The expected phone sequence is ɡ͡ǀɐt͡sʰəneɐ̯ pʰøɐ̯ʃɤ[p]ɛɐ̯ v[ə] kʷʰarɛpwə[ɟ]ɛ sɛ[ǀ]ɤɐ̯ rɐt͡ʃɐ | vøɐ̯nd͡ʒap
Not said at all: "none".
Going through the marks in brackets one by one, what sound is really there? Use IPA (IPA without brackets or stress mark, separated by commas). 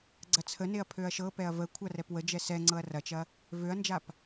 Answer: p, ə, d͡ʒ, ŋ͡ǀ